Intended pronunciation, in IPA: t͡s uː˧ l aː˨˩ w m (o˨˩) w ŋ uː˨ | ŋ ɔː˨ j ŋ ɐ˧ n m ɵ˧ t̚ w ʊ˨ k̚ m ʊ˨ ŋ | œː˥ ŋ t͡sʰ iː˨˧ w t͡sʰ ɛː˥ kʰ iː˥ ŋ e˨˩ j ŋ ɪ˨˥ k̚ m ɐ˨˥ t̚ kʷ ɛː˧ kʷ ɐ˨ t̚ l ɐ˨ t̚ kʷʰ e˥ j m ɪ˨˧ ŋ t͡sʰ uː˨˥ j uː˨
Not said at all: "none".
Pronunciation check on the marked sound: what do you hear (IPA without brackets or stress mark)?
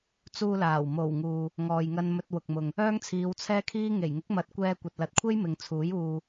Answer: o˨˩